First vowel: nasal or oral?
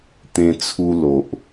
nasal